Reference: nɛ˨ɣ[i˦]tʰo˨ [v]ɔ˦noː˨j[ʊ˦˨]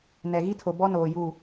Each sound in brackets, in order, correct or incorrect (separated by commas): correct, incorrect, incorrect